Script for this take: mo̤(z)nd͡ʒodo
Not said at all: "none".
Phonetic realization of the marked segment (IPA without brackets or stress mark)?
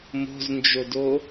z